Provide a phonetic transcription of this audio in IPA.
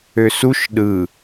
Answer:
ø s u ʃ ɗ ɯ

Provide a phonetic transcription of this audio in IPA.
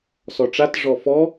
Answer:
s ɔ ʈ͡ʂ a t ʐ ɔ f ɔ

